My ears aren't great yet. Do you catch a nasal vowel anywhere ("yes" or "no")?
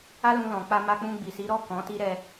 yes